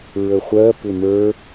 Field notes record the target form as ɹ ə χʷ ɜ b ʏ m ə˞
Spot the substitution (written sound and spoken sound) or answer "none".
b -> p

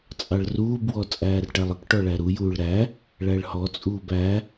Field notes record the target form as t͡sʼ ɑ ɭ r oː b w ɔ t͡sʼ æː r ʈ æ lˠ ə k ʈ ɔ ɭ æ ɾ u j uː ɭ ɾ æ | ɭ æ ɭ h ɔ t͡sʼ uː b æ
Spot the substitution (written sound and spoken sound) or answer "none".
oː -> uː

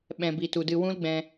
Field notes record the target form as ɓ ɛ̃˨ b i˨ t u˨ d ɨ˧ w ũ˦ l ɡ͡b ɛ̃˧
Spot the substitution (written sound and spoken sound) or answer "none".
none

